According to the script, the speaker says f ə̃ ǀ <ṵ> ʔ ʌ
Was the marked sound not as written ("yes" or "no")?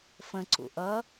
no